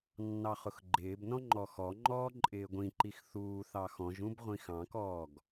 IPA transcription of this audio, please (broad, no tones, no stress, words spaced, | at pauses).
nːɑχʊxɡ͡ǃɪːbnɔ̃ ŋ͡ǃɔxɔŋ͡ǃɔː ǃʼɪːɡʷĩǃix θuː θɑxɔ̃ʒũb ʁʷĩxɑ̃kɔːɡ